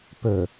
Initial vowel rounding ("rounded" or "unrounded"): rounded